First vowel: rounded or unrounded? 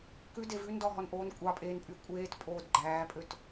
rounded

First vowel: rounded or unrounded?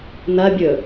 unrounded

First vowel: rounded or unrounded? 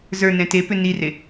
unrounded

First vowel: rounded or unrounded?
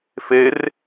unrounded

